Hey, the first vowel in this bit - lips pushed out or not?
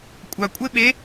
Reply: no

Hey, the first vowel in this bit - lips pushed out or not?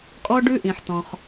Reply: yes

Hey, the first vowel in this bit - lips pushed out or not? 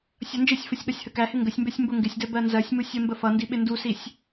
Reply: no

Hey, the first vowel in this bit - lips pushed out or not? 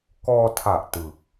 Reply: yes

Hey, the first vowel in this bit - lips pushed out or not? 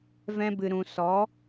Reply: no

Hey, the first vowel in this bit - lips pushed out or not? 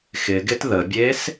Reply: no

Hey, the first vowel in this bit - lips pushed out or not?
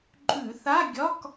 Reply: yes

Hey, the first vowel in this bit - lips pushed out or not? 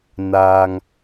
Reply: no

